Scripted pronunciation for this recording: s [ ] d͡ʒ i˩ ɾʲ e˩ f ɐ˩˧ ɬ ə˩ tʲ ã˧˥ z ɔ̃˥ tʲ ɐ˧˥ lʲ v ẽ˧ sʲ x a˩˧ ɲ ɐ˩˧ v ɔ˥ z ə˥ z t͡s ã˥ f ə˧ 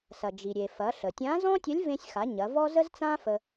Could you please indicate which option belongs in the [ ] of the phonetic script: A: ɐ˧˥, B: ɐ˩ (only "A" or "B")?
B